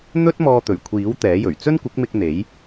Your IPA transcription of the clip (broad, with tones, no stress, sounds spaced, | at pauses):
n̪ ɵ˥ t̚ m ɔː˧ t̪ ɵ˨˩ ɥ kʷʰ iː˨˥ w t̪ ɛː˨˥ j ɵ˨˩ ɥ t͡s ɵ˥ n kʷ ɪ˨˥ k̚ m ɪ˧ k̚ n̪ e˨˥ j